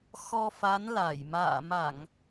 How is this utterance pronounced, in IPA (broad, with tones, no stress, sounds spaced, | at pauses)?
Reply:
x ɔ˧ f a˨˦ n l a˧˩ j m a̰ː˧˨ m a˧˩˨ ŋ